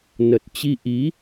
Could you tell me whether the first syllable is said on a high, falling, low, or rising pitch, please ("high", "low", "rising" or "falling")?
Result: low